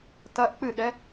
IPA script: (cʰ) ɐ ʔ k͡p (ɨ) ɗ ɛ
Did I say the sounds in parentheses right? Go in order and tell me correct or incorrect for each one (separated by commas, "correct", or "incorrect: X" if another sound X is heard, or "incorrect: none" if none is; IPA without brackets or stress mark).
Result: incorrect: t, correct